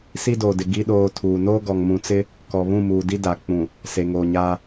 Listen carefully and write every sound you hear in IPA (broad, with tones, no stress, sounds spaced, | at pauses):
s i˦ d oː˨ d ɪ˨ ɡ i˦ ɗ oː˦ tʰ uː˨ n oː˦ ɡ ɔ˨ ŋ m ũ˨ t͡s ɪ˦ | k ɔ˨ β ũ˦˨ m uː˨ d i˦ d a˨ k͡p ũ˨ | s e˨ ŋ oː˨ ɲ aː˦